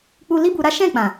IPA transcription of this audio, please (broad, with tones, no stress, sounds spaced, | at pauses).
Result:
k͡p u˦ l i˦ b u˧ ɾ a˦ ʃ ɛ̃˦˨ k͡p ã˨